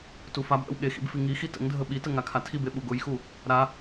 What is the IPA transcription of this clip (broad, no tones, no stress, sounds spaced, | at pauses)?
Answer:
t u f a b ʔ ə̰ w ɠ e x ḭ b f i ŋ i x i t ə̰ ŋ dʱ ə ɓ i t ə ŋ a kʰ a tʰ i b e ɓ u ɡ ʊ j x u | ɾ a